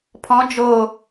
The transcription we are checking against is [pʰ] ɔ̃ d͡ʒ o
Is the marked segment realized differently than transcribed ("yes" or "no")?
no